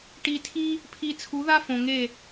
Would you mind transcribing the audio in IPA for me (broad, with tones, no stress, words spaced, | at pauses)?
ʈi˧tʰi˦ | pʰi˧t͡sʰu˨˦ða˦fõ˨ ŋe˦˨